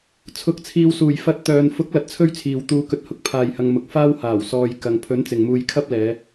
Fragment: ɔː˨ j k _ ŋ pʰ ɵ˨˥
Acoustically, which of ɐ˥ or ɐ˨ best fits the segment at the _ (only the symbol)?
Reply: ɐ˨